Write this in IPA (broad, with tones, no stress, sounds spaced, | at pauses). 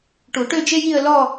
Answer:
ʈ u˨˩˦ ʈ ø˥˧ d͡ʒ e˥ j i˥˧ ə̯ l ɔ˥˧